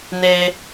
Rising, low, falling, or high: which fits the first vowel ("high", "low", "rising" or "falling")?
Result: low